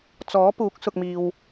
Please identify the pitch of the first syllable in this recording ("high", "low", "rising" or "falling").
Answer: rising